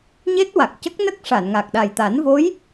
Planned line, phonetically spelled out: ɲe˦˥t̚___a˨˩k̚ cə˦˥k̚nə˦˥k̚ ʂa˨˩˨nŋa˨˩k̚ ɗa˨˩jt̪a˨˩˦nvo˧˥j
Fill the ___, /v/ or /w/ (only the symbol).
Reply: w